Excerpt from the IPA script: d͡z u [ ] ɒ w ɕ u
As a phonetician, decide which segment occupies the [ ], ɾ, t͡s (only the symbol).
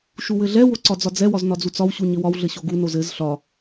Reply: t͡s